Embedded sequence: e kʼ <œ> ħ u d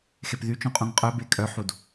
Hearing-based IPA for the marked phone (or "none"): œ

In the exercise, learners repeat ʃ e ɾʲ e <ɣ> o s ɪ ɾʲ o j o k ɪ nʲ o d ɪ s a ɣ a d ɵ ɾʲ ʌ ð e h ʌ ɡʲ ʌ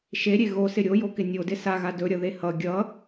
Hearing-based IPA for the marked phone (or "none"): ɣ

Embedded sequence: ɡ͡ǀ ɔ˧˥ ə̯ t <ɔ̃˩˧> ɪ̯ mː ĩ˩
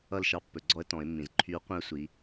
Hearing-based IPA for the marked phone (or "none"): ɔ̃˩˧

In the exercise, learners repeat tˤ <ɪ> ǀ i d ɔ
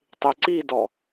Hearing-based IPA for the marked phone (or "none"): ɪ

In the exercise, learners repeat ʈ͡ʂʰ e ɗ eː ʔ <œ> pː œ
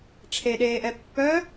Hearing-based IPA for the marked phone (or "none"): ɛ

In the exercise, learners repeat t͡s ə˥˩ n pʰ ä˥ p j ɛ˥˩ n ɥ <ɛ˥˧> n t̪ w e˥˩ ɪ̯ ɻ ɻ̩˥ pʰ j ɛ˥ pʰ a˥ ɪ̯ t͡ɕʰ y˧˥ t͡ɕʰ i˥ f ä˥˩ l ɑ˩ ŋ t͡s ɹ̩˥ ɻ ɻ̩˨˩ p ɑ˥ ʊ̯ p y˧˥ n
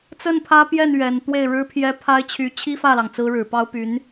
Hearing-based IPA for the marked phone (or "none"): ɛ˨˩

